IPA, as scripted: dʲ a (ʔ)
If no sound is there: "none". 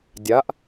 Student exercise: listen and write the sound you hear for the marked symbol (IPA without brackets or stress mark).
ʔ